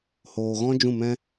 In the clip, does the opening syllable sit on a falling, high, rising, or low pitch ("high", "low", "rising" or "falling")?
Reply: low